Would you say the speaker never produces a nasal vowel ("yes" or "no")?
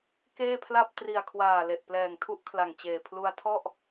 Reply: yes